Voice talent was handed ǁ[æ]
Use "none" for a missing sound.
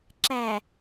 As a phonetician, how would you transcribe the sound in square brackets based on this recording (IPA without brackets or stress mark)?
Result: æ